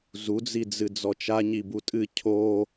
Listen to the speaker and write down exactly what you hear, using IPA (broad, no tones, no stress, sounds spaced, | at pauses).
z u d͡z i d͡z ɨ d͡z ɔ t͡ʃ a ɲ i b u tʼ ɨ cʰ o